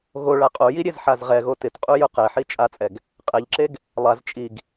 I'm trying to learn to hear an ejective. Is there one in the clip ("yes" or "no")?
yes